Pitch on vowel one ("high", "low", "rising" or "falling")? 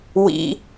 high